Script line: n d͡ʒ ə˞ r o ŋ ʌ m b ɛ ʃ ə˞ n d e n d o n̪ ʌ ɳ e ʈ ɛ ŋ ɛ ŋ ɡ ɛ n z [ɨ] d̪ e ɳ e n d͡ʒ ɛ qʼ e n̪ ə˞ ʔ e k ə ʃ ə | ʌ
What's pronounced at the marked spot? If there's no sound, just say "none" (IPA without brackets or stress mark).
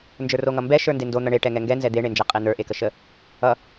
ɛ